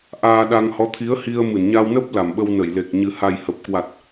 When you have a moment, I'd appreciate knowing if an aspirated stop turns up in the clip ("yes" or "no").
yes